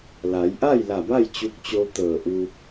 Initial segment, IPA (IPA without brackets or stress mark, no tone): l